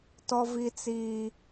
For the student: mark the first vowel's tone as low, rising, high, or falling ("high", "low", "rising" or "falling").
high